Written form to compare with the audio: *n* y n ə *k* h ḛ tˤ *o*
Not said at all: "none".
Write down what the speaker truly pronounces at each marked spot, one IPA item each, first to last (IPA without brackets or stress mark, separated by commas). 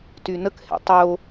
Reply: t, k, o